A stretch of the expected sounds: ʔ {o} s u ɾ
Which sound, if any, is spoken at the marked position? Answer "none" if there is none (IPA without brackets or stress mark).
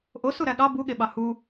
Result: o